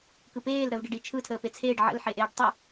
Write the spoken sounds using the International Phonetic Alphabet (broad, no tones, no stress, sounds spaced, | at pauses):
k ɯ p eː l ɾ əː v ɖ e ɖ i t͡ʃʰ ɯ tʰ əː p e t͡sʰ eː ɖ ʕ ə̰ l ħ e ʔ eː ɖ tˤ ɯ